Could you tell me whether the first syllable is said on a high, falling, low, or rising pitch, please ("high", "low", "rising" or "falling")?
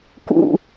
falling